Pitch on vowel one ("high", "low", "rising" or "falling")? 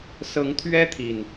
rising